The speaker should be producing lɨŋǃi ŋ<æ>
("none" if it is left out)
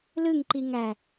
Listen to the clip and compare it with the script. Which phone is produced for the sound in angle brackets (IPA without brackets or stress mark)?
æ